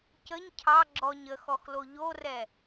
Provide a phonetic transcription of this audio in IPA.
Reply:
cəɲ cʰɑ ɡ͡ǁɔɲ əxɔxlo ʎorɛ

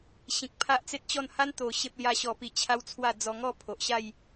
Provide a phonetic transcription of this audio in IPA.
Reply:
ɕĩ˨k̚pʰa˦ʔt͡se˦t̚t͡ɕɔ˥˧n ha˦n t̪o˨˩ ɕe˦p̚lja˦ɕɔ˧pi˧ t͡ɕʰa˦wt͡sʰwa˥˧d͡zɔ˧ ŋɔ˥˧pʰo˨ʔɕa˥˧j

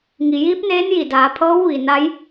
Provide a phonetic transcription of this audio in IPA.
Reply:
ŋi˩jiː˧˥p̚neː˧˥n ji˧˩daː˩˧ pʰɤː˧˥wʋi˩ na˧˥j

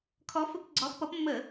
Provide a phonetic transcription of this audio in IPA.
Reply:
kʰɔ˨˦fə˧˩˧p ɡ͡ǀɔ˨˦xpʌ˨˦pmːə˧˩˧

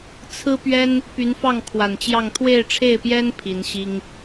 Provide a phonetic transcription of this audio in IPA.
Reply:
t͡sʰɹ̩˥pɥɛ˥n | py˧˥nfɑ˥˩ŋkʰwa˨˩nt͡ɕjɑ˥˧ŋ t̪ʰwe˥˧ɪ̯ʈ͡ʂʰe˥˩ɪ̯pjɛ˥n pʰi˧˥n ɕi˥ŋ

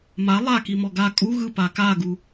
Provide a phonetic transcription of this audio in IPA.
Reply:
ma lˠakimɔ ɡa kʼu ɣɯpa kaɡu

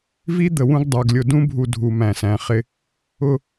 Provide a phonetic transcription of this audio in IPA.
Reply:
vi˦ d̪ə˨wũ˦ɡdˤə˞˨ɡ lʲʊ˨dũ˦bʱu˨ dʱu˨mæ̃˨sæ̃˨χɪ˦ | ʊ˦

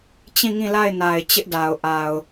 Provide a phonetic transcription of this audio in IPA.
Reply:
t͡ɕĩ˦˨ŋĩ˦˨la˦˨ɪ̯ na˨ɪ̯ t͡ɕɪ˦ʔda˨ʊ̯ʔa˨ʊ̯

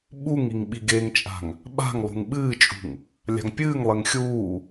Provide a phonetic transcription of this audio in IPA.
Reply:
ɓuŋiŋ ɓiɡeŋt͡ʃʼa̤ŋ | ɓa̤ŋ lˠṳŋɓɨːt͡ʃʼṳŋ | lʲa̤ŋpʲɨːŋlˠeŋ xʲuː

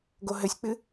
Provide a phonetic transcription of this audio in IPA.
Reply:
ɡoɦɘsʲk͡pɨ

